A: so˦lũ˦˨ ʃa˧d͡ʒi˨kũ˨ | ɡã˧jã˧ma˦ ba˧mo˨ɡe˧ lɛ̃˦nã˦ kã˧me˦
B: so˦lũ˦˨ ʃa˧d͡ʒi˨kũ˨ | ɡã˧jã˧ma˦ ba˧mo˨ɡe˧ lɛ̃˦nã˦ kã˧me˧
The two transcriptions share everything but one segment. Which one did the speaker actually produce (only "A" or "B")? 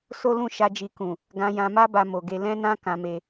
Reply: B